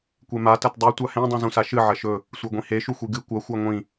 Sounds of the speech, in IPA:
kʷema tɐtdˤʉ tʷahẽ dˤũzũsaʃɨ ʕɐʃɵ | sʷeɡʷĩhe ʃuxʷiɡɨ kʷɐ xʷaŋʷĩ

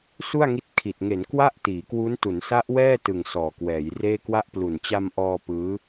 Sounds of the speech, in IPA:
su˥˩a̯ŋi˦˥t̚kʰi˨˩t̚ ŋe˩˦n kwa˥˩ʔ tiː˩˦kwu˦˥n tu˩˦nsa˦˥ʔwɛː˥˩tɯ˨˩ŋ sɔː˨˩kwɛː˩˦jreː˥˩ kwa˦˥ʔplu˨˩n t͡ɕa˧mʔɔː˧ pɯː˦˥

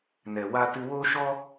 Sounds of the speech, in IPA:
nɛ˨wa˧tɨ˧ wo˦ ʃɔ˦

